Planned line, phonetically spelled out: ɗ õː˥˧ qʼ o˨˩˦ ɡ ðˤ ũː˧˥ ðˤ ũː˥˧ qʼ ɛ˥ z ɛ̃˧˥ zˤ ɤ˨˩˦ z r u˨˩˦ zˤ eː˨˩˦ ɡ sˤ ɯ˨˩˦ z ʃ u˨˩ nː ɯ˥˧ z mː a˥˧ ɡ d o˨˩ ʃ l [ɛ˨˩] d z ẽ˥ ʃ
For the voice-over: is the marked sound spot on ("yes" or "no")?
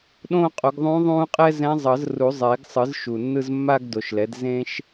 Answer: no